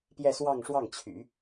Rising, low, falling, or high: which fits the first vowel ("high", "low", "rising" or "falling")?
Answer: falling